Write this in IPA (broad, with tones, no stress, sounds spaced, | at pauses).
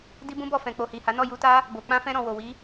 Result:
d i˦ b ũ˦ b ɔ˦˨ f ɛ̃˨ k͡p o˨ h i˨ h a˨˦ n ɔ˦˨ j u˧ t a˦ | b o˨ k͡p ã˧ f ɛ̃˧ ɾ ɔ̃˨ w o˨ w i˨˦